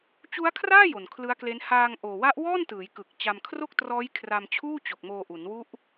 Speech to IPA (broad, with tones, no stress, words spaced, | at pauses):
t͡ɕu˦˥a̯kʰraː˥˩ jo˨˩nkʰlɯ˦˥a̯kle˦˥n haː˧ŋʔoː˨˩wa˦˥ʔ wɔː˥˩ntɯː˩˦jkɯ˨˩k̚ t͡ɕa˧mkʰro˥˩k̚trɔː˦˥j kʰra˧mt͡ɕʰuː˥˩t͡ɕo˨˩k̚ moː˧ʔu˩˦nwu˦˥ʔ